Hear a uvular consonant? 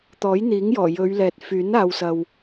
no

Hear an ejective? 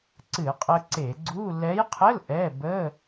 yes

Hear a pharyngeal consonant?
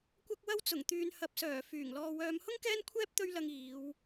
no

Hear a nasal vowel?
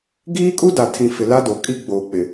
yes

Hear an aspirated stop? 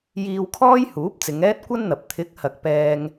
yes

